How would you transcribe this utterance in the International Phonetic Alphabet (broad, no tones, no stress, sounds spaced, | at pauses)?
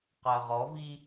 q ɜ ʁ ɔ v i